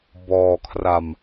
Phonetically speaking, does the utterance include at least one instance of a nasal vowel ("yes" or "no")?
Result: no